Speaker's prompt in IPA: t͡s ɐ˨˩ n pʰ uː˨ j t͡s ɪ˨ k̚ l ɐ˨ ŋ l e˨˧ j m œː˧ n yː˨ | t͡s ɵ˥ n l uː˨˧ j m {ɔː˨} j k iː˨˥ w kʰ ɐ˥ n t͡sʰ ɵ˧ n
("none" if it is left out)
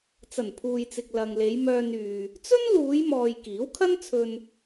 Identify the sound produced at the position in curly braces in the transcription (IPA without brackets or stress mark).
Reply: ɔː˨